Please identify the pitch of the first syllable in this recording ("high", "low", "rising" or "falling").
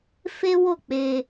high